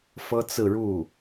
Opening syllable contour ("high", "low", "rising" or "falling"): high